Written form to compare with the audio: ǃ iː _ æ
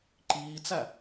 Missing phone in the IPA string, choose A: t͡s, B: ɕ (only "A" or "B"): A